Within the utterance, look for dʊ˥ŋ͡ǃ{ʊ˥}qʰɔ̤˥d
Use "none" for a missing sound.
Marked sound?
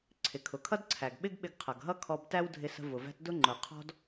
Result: ʊ˩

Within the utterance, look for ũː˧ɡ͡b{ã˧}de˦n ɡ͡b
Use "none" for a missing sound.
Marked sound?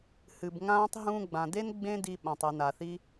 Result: ã˨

